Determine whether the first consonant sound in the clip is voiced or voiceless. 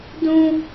voiced